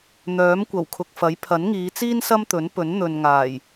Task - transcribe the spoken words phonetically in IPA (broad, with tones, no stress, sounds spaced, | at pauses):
n̪ œː˨˥ m kʷ ɐ˨˩ w kʰ ʊ˨ k̚ f ɐ˨˥ j pʰ ɐ˨˥ n ŋ iː˨˧ t͡s iː˥ n s ɐ˥ m t̪ ɵ˨˥ n p ɵ˨˥ n n̪ ɵ˨ n ŋ aː˨˩ j